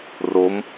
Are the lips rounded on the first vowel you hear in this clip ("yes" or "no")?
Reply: yes